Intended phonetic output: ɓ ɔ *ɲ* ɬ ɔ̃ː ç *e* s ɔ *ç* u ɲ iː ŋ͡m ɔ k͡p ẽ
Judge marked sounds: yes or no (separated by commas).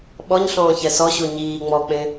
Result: yes, no, no